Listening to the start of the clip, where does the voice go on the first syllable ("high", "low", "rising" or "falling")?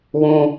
low